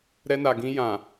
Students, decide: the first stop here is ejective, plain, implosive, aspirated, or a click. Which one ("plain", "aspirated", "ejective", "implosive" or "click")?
plain